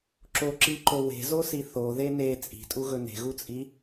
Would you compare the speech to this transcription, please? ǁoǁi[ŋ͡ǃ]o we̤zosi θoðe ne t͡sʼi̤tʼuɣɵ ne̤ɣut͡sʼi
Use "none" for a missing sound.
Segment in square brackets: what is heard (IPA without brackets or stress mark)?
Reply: ǃ